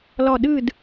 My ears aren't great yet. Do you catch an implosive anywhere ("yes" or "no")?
yes